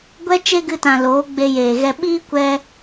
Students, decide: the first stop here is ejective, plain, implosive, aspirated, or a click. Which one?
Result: plain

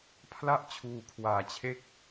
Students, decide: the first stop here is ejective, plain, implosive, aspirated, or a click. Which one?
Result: aspirated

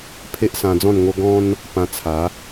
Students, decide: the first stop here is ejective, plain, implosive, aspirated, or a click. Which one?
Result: aspirated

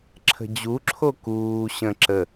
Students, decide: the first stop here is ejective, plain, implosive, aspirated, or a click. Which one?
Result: click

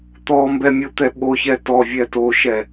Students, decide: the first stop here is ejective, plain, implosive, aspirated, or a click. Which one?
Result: plain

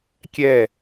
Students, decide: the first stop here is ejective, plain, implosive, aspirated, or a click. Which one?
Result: plain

